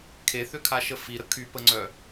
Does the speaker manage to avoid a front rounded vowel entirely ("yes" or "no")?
no